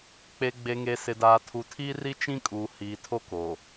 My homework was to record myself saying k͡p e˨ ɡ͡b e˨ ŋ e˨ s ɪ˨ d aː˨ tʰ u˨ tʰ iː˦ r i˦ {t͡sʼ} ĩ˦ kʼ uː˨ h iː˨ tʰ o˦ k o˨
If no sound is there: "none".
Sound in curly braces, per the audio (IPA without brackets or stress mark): t͡ʃ